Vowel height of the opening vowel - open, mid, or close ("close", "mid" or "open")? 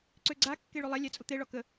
mid